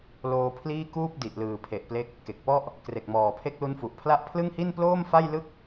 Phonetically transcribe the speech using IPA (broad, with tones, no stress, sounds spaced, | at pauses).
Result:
l oː˧ pʰ l iː˥˩ k uː˥˩ p̚ d i˨˩ ʔ l ɯː˨˩ pʰ e˨˩ ʔ p l e˦˥ k̚ | k e˨˩ k̚ p ɔ˥˩ ʔ | k r e˨˩ k̚ m ɔː˨˩ pʰ e˦˥ k̚ l u˦˥ n f u˨˩ ʔ pʰ l a˥˩ ʔ pʰ l ɯ˥˩ ŋ h i˥˩ n p l oː˥˩ m f a˥˩ j l ɯ˥˩ k̚